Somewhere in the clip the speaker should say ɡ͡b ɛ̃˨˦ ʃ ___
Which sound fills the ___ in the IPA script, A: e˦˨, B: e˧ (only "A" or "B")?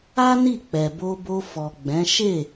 A